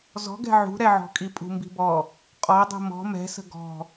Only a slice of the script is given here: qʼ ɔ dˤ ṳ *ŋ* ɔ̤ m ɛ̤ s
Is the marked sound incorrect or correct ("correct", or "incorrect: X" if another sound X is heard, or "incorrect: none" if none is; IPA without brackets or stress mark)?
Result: incorrect: m